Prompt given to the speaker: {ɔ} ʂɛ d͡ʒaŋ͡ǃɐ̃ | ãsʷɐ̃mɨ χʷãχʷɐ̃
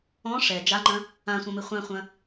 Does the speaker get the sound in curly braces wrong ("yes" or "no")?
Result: yes